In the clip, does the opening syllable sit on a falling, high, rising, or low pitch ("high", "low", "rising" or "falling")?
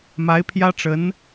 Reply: rising